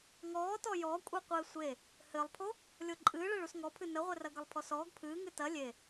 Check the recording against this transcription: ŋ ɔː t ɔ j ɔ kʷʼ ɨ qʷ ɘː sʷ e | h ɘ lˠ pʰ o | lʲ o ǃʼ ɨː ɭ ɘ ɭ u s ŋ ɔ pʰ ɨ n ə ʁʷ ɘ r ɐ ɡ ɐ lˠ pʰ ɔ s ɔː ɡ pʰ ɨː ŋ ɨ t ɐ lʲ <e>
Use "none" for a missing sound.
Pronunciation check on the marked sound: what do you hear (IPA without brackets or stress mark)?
e